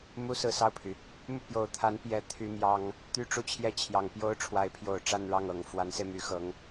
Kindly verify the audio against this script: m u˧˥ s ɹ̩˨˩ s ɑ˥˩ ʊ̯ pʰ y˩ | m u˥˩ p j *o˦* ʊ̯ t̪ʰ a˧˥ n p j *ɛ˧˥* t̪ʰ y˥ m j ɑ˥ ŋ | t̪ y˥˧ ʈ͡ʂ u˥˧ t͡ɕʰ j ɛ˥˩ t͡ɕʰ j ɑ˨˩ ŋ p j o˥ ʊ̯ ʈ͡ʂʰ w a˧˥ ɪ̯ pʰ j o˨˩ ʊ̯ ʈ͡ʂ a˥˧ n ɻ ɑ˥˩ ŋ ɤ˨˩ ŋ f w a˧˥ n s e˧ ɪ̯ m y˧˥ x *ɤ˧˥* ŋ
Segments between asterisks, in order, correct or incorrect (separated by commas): incorrect, correct, correct